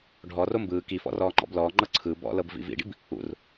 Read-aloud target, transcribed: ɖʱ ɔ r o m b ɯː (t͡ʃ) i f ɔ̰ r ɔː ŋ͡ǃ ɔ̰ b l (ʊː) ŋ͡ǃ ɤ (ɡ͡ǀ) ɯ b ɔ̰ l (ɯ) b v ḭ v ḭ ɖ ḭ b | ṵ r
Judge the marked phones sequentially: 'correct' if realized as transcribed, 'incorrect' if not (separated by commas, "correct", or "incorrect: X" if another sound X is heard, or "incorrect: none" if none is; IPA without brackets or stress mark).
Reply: incorrect: k, incorrect: ɔː, incorrect: ǀʰ, incorrect: ɤ